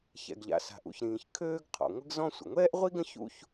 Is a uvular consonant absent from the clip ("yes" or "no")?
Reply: no